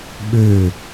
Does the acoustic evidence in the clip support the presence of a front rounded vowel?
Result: yes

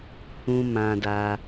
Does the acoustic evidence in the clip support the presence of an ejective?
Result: no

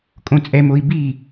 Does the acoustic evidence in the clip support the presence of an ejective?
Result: yes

